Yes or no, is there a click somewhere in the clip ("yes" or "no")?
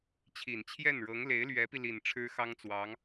no